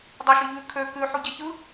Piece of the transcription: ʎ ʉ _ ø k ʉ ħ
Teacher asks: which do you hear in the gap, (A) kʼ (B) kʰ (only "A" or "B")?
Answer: B